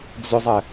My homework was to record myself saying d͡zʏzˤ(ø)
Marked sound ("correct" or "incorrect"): incorrect